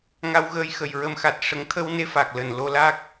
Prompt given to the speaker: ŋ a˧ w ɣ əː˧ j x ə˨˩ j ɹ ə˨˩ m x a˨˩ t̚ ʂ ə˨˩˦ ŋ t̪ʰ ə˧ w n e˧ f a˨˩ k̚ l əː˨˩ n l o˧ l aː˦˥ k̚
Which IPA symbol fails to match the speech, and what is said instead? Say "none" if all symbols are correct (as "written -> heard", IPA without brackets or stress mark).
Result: none